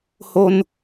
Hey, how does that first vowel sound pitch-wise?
high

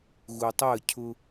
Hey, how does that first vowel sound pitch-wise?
low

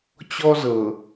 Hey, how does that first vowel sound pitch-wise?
high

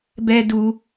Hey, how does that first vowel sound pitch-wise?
high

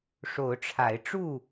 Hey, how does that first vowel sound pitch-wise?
rising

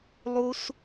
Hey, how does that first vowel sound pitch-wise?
high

